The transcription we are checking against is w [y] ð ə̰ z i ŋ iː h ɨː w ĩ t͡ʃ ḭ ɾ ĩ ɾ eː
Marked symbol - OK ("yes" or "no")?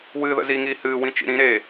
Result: no